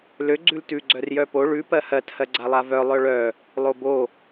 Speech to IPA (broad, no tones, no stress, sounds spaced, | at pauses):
l ø ɡ͡ǀ ʉ l t ʉ ɡ͡ǀ œ r j œ p o ɭ ʉ p ɜ h ɜ t h ɜ ɡ͡ǀ a lˠ a v œ lˠ œ ɭ œ | lˠ o b o